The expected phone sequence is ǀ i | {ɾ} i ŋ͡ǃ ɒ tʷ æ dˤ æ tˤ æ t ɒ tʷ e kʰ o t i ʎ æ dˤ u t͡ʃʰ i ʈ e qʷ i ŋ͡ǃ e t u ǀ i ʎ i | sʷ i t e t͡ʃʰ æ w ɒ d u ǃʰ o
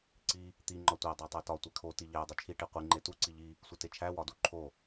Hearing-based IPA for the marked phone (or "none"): t̪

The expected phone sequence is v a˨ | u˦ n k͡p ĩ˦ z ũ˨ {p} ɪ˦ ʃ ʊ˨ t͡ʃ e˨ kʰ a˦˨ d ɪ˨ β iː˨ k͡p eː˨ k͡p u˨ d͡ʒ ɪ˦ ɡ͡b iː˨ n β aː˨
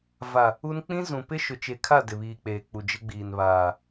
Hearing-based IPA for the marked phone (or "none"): p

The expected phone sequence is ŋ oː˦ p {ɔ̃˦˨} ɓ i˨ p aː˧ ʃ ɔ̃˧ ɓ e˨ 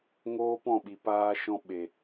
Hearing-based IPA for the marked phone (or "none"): ɔ̃˦˨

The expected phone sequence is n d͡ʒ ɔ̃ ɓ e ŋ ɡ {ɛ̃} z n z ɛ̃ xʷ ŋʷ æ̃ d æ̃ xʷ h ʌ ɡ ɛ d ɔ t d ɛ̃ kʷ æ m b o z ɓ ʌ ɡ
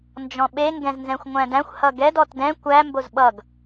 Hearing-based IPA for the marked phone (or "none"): ɛ̃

